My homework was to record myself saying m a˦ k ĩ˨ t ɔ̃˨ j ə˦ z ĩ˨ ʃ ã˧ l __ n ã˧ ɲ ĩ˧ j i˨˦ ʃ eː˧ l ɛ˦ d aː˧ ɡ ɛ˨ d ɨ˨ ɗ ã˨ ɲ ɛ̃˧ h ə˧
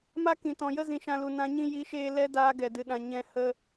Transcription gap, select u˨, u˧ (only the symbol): u˨